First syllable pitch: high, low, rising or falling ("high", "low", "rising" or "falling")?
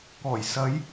low